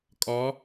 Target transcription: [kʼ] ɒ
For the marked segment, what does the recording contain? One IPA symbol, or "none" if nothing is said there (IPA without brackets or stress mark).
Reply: kʼ